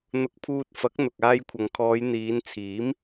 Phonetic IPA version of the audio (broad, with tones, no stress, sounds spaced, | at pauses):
n̪ ʊ˧ k̚ pʰ uː˧ t̚ f ɐ˨˥ k̚ n̪ ʊ˨ k̚ aː˧ j kʷʰ ɐ˨ ŋ kʰ ɔː˨˧ j n̪ iː˨˧ n t͡sʰ iː˨˥ m